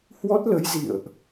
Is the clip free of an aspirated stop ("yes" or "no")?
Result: yes